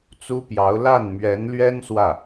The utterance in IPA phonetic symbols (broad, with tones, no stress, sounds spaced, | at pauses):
t͡s u˥ p j ɑ˧˥ ʊ̯ l a˥˩ n m ɥ ɛ˧˥ n l ɥ ɛ˥ n s w ä˥˩